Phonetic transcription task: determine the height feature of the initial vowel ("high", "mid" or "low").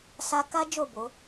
low